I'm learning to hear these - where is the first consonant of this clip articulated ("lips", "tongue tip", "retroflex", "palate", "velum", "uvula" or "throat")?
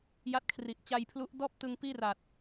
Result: palate